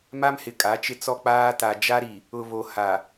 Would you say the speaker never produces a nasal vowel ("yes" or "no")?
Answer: yes